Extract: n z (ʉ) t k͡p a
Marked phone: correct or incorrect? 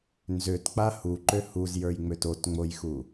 incorrect